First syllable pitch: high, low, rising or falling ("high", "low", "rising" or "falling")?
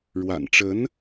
low